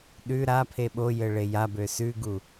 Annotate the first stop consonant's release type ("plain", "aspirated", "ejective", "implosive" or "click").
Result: implosive